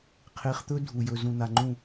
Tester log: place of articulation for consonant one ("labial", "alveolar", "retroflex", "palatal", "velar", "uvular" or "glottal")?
uvular